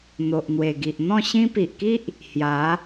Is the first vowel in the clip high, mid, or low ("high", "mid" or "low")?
mid